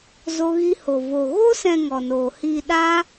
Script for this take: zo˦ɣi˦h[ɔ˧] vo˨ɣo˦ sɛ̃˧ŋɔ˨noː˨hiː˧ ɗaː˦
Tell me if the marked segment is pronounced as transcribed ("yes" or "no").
no